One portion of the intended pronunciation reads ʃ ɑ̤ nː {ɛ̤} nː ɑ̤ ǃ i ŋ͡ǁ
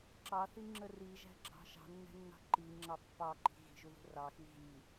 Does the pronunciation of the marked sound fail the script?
yes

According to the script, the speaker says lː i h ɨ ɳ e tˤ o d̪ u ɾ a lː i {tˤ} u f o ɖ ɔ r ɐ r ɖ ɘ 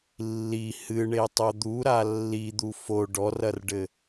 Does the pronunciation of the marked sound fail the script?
yes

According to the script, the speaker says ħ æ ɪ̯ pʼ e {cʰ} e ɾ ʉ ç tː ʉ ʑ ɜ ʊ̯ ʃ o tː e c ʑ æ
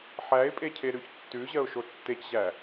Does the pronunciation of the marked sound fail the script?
no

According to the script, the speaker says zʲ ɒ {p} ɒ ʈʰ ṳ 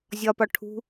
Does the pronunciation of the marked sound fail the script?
no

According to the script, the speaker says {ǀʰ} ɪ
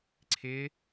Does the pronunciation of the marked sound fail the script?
no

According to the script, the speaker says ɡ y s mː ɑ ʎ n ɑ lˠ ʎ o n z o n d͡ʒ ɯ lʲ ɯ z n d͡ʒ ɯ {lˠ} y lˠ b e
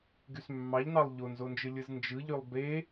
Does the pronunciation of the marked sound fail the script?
yes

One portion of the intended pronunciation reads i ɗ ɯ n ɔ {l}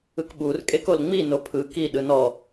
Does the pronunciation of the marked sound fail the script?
yes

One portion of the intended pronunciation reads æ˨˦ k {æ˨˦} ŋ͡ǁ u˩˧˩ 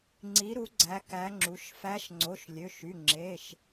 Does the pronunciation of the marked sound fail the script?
no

